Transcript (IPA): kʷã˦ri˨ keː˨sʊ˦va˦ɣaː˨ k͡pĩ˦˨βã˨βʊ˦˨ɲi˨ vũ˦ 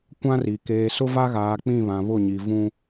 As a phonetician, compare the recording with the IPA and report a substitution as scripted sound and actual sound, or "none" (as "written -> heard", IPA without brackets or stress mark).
none